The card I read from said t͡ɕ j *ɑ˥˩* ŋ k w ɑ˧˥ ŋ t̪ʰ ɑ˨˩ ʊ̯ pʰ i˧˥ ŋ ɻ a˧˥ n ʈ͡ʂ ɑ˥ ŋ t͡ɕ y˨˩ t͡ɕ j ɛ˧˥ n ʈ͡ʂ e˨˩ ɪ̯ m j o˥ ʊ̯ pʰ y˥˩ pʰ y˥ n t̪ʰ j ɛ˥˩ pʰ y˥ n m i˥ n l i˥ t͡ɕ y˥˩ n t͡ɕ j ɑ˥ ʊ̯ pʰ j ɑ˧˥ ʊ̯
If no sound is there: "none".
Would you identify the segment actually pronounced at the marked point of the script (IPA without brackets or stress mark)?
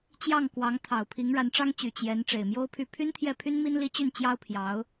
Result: ɑ˥˩